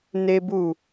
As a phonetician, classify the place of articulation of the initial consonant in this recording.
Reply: alveolar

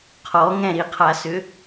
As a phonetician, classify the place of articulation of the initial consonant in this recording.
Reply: uvular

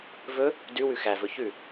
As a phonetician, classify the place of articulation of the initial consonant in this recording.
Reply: labial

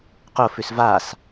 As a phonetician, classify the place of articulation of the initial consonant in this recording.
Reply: uvular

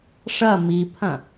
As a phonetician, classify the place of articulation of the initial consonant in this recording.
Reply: retroflex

